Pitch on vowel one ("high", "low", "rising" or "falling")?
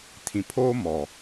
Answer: low